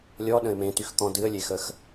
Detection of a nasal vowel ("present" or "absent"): present